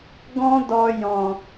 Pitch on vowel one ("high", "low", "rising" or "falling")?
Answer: high